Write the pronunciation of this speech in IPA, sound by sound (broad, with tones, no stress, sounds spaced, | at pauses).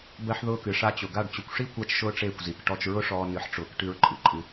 b ɜ˦ ħ ð ʊː˦ k ɨ˧ ʂ a˧ t͡ɕ ʊ˨ ɡ a˦˨ ɖ t͡ɕ ʊ˧ kʷ ʂ i˦ kʷ a˦ t͡ʃ ʃ ʊː˦ ʈ͡ʂ eː˦˨ kʷ z i˨˦ k ʈ ɔ˧ t͡ʃ ɹ ʊ˦ ʂ ɔː˧ n ɨ˨˦ ħ ʈ͡ʂ ʊː˨˦ k ʈ ɨ˧ ɹ ǃʼ ɨ˨ ǃʼ ɨ˧